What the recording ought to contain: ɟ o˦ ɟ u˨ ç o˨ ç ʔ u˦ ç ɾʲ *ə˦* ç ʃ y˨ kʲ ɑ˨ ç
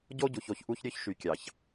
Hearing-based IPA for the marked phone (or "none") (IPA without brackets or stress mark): ø˦